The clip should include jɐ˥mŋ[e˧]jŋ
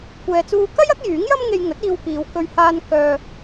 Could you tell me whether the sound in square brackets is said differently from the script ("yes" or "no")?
no